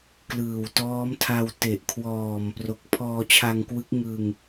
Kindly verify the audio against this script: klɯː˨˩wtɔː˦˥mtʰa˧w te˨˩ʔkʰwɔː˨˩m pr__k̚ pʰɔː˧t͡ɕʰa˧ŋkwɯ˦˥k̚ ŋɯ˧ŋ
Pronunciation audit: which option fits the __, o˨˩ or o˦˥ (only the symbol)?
o˨˩